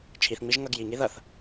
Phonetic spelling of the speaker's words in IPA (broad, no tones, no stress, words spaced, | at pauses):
t͡ʃʰiθŋ͡miʒ ŋʌɡ jiŋi ðʌθ